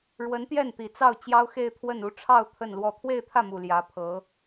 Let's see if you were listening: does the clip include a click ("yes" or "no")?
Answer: no